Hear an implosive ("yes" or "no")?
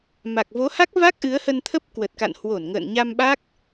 yes